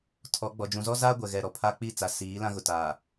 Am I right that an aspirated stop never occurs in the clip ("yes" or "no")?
no